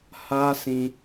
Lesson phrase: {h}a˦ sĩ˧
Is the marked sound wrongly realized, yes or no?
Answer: no